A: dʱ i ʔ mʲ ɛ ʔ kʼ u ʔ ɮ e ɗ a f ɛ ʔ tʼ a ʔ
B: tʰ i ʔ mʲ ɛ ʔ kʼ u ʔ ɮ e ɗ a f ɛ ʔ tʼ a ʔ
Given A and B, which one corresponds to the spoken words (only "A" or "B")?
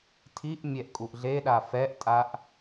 B